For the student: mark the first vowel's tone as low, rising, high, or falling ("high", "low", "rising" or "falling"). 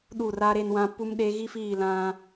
falling